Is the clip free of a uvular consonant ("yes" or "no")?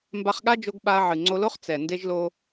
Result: no